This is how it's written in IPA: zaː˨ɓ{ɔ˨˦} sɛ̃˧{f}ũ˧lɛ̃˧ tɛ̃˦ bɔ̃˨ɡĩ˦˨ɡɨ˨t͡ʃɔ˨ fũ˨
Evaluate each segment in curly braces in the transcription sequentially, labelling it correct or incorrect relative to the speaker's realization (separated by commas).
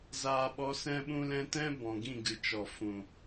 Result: correct, incorrect